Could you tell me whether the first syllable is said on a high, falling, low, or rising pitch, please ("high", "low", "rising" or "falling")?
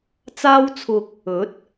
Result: high